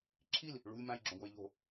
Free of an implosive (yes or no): yes